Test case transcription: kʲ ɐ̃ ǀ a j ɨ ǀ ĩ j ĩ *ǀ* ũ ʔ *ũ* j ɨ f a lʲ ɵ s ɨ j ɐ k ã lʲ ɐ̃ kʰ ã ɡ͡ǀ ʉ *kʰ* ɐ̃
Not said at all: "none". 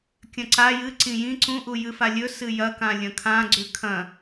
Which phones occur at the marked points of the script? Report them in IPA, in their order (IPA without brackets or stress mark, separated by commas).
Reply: ǀ, u, kʰ